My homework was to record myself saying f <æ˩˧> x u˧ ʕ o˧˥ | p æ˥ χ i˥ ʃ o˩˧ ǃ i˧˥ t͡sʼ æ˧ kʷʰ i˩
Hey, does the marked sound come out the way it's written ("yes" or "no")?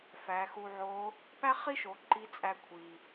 yes